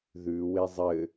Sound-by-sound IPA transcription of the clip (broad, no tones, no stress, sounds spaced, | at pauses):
ð ʉ w e zˤ ɘ